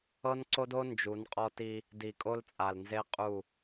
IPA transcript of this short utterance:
ɤ˦ n ǀ o˦ d o˦ n d͡ʒ u˨˦ n qʼ ɔ˦ t i˦ | d i˨ kʼ o˦ l t͡sʼ a˨ l n z e˦ qʼ u˦˨

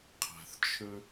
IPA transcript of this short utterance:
qʰ a̤˩ θ t͡ʃʰ ɵ˧

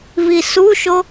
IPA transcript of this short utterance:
β i s u ʃ o

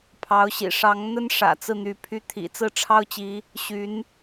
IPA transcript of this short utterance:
pʰ ɑ˧˥ ʊ̯ ɕ ḭ˨˩ ʂ ɑ˧˥ ŋ n̪ ə˥ n ʂ ä̰˨˩ t͡s ɹ̩˥˩ n̪ y˧˥ pʰ y˥˩ t̪ʰ ḭ˨˩ t͡s ɹ̩˥˩ ʈ͡ʂʰ ɑ˥ ʊ̯ t͡ɕ i˧˥ | ɕ y˧˥ n

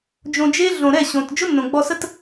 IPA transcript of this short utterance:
d͡ʒ õ˧ d͡ʒ e˦ ɮ õ˨ ɾ ɛ˦˨ ɕ õ˨ t d͡ʒ ʊ˦ nː õ˨ ɡ͡b ɔ˧ s ə˦ t

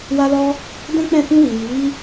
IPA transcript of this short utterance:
w a˧ l ɔ˧ | d ɛ̃˦ k͡p ɛ̃˦˨ f ũ˧ w i˨ j i˨˦

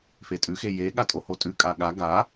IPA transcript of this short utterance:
f e tʼ ʉ x e j e ɠ a tʼ o h o tʼ ʉ kʼ a ɠ a ɡ a

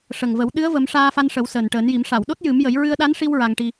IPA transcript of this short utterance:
ʂ ə˨˩ ŋ v ə˨˩˦ w ɗ ɨ˧˥ ə̯ v ə˨˩˦ m ʂ aː˧ f a˧ n ʂ ə˨˩˦ w s əː˨˩ n ʈ əː˨˩˦ n j i˨˩˦ m ʂ a˨˩˨ w ɗ o˦˥ t̚ j ɨ˨˩˦ m j ə˨˩˦ j ɹ ɨ˧ ə̯ ɗ a˧˥ n ʂ i˧ w ɹ a˧ ŋ ʈ i˧

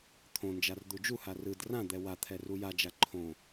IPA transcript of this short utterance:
t̪ʰ õ n d͡ʒ a r d̪ u d͡ʒ u h a r ɯ d r ã d̪ ɛ w a t̪ʰ ɛ r u j a d͡ʒ a ǃʰ õ

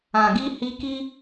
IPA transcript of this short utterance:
ã˨ ɡ i˧ h i˧ k i˦

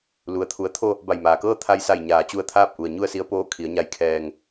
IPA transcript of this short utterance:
l u˩ ə̯ t̪ʰ u˩˧ ə̯ t̪ʰ o˥˨ | b a˧˩ j m aː˩ k ɤː˥˨ t̪ʰ a˧ j s a˧˩ j ɲ aː˩˧ t͡ɕ u˧ ə̯ t̪ʰ aː˥˨ p̚ ʔ u˩ ə̯ ɲ u˥˨ ə̯ s i˧˥ ə̯ p oː˧˥ kʰ i˩˧ ə̯ ɲ a˧ j kʰ ɛː˧ ŋ

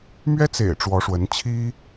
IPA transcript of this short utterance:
m ɥ ɛ˥ t͡s ḛ˨˩ ɪ̯ ʈ͡ʂ w ɔ˧˥ ʂ w ə˧˥ n t͡ɕʰ i˥

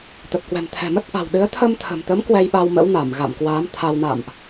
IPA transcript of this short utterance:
t̪ ə˨˩ p̚ k w ɛ̤˨˩ m t̪ʰ ɛ̤˨˩ m ə˦˥ t̚ ʔ a̤˨˩ w ɗ ɨ˨˦ ə̯ t̪ʰ ə˧ m t̪ʰ ə̤˨˩ m t̪ ə˨˦ m k w ɛ˧ j ɓ a˧ w m ə̰˧˥ w n a˧˩ m ɣ a̰˧˨ m k w aː˨˦ m t̪ʰ a˧ w n a̰˧˨ m ʔ

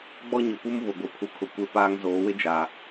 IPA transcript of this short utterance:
ɡ͡b ɔ˦ ɲ ʊ˨ p u˦ m β ʊ˨ ɡʷ ɪ˨ pʰ u˨ kʰ ʊ˨ kʷ e˦ p aː˦ ŋ z oː˨˦ w ɪ˦ d͡ʒ a˨

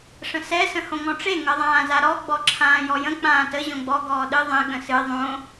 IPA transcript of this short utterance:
ʂ ə̃ s ɛ s ə̃ h õ ŋ ɔ̃ ʈ͡ʂ e ŋ ʌ ðˤ ãː z a ɾ ɔ ɡ͡b ɔ ǁʰ ãː j ɔ j ə̃ k͡p ãː t ə ʑ õ ɡ͡b ɔ ɡ ɔː ɗ ɨ ðˤ ẽ ɠ ə̃ s ɨ ðˤ õ

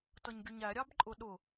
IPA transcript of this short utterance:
t ʌ ɲ ɡʲ ʊ ɲ æ ɾʲ ɑ b ǃʼ ʊ ɗ ʊ

